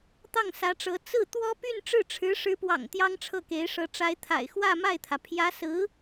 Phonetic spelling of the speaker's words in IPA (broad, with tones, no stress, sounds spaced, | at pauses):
t̪ ɑ˥˩ ŋ s ä˧˥ ʈ͡ʂ ɤ˧˥ t͡s ɹ̩˥˩ t̪ w ɔ˥ p y˥˧ n ʈ͡ʂ ɻ̩˥˩ ʈ͡ʂʰ ɻ̩˧˥ ʂ ɻ̩˧˥ p w ɑ̰˨˩ ŋ t̪ j ɑ˥ ŋ ʈ͡ʂʰ ɤ˥˩ k e˧˥ ɪ̯ ʂ ɤ˧˥ ʈ͡ʂ a˧˥ ɪ̯ t̪ʰ a̰˨˩ ɪ̯ x w ä˥˧ m a˥˩ ɪ̯ t̪ʰ ä˩ pʰ j ä˧˥ s ɹ̩˧˥